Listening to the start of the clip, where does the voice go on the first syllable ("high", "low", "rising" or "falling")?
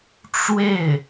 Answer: falling